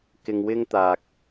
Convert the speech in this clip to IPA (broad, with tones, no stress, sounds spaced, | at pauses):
k ɪ˧ ŋ w ɪ˥ ŋ t̪ aː˨ k̚